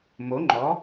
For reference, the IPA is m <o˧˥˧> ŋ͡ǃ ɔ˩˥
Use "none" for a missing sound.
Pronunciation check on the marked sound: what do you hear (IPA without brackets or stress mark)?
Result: o˩˥